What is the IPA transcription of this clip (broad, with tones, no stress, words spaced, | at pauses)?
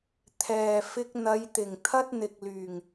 t̪ʰɛː˨ fɪ˧k̚n̪ɐ˨˧jt̪ɪ˨˩ŋ t̪ʰɐ˥t̚n̪ɪ˨k̚ lyː˨˩ŋ